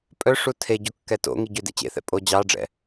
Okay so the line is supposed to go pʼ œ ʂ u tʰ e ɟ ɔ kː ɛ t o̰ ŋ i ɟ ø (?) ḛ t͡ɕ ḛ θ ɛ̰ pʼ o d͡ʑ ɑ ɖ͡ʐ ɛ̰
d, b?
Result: d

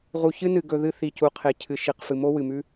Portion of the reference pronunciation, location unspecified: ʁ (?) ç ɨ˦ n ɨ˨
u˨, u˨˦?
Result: u˨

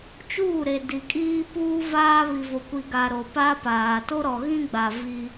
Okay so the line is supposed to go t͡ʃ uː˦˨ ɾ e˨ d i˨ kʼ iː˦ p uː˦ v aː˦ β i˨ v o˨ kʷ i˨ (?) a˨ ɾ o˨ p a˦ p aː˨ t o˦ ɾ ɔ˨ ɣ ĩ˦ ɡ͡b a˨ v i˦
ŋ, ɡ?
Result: ɡ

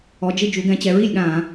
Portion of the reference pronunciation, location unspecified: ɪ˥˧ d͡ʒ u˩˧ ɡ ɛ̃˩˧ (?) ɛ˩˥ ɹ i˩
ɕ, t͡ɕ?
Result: t͡ɕ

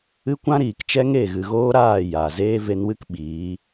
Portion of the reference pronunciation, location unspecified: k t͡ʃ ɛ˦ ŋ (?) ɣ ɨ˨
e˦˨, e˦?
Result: e˦˨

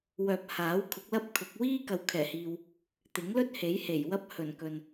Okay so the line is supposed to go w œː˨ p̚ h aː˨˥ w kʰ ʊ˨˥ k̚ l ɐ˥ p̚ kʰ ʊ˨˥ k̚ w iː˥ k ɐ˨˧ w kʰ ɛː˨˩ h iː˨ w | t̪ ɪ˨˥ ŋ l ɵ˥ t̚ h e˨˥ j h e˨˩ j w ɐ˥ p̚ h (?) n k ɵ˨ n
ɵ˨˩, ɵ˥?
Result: ɵ˨˩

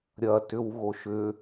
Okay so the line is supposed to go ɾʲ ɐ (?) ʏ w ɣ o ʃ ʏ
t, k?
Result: t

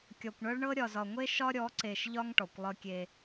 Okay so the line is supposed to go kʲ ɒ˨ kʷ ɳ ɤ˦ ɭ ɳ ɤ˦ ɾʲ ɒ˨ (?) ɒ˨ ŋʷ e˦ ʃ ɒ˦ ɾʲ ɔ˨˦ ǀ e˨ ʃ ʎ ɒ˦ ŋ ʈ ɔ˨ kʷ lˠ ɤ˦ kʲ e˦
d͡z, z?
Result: z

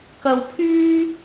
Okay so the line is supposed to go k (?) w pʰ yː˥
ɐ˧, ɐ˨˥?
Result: ɐ˧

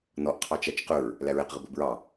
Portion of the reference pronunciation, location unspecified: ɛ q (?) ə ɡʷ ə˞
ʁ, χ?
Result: ʁ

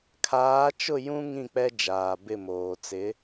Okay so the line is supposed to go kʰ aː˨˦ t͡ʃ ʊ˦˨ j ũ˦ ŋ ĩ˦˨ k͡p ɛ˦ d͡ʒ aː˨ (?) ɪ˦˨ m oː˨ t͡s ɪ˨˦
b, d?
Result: b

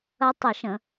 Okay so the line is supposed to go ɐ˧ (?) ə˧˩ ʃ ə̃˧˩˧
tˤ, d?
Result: tˤ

